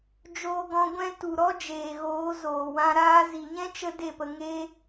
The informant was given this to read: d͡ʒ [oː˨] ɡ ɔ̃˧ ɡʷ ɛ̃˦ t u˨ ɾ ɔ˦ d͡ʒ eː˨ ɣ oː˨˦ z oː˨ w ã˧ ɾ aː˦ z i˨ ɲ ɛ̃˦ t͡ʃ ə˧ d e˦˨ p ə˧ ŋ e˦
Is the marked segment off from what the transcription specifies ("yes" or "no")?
yes